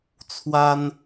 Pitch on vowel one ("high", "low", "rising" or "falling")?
high